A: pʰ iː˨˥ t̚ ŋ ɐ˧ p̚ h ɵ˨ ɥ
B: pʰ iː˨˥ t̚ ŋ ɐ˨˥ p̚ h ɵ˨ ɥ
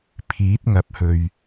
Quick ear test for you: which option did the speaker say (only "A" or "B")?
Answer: B